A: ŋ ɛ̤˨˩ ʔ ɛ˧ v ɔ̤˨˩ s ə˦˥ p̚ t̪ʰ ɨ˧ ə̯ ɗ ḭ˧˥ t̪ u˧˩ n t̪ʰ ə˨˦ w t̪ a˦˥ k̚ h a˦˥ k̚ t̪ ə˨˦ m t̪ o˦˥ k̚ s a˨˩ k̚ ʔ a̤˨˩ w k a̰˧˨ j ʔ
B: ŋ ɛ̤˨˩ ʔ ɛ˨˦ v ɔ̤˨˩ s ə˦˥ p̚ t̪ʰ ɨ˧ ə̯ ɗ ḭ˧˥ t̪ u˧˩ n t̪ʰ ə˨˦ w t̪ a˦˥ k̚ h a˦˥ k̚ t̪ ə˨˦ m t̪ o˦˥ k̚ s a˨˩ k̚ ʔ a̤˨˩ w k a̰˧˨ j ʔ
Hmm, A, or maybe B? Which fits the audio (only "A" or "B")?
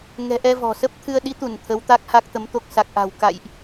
A